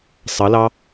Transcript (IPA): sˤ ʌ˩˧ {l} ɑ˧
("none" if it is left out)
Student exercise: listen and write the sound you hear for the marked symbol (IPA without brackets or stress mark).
l